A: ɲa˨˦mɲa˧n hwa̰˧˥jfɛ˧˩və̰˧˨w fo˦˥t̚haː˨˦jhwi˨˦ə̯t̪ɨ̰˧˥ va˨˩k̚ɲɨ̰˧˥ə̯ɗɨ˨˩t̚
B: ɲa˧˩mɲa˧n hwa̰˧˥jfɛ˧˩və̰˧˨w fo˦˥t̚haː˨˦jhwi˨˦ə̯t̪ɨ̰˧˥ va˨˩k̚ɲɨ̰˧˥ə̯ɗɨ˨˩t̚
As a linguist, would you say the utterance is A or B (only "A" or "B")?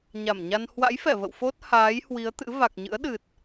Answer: B